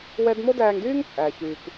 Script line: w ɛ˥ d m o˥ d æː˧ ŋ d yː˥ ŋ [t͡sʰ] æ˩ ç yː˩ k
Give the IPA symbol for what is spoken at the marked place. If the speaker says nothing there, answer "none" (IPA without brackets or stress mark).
t͡sʼ